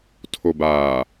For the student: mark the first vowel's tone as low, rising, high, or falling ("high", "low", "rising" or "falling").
low